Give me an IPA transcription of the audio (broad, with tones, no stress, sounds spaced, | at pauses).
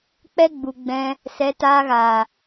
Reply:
k͡p ɛ˦ ɡ͡b u˨ ɡ͡b ɛ̃˧ | s ɛ˨˦ t aː˧ ɣ aː˨